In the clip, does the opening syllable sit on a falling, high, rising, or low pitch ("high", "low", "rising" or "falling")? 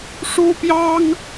high